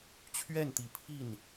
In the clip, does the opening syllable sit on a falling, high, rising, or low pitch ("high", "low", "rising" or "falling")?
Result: falling